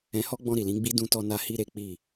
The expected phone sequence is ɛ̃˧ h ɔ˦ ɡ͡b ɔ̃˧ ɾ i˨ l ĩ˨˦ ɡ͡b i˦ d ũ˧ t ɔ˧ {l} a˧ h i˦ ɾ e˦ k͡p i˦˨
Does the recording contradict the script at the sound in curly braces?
yes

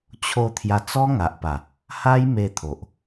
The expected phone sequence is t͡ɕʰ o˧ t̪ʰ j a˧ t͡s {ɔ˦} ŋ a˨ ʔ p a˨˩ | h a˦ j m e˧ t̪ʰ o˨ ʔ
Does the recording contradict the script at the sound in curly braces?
no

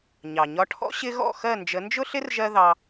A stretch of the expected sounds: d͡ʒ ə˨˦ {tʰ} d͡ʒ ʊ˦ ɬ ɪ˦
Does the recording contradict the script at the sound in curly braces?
yes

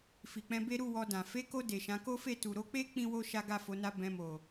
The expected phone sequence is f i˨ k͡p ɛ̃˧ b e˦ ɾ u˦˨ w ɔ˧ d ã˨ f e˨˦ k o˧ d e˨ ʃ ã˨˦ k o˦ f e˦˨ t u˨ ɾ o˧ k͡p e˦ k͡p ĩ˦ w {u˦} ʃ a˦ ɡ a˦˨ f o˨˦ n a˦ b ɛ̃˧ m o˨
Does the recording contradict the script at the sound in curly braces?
yes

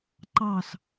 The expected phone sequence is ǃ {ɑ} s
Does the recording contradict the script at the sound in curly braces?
no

